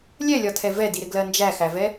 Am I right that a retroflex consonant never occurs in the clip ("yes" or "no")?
yes